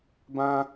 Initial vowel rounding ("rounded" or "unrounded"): unrounded